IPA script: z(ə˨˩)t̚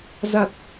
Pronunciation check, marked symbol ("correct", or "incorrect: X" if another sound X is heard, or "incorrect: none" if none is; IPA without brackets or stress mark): incorrect: a˨˩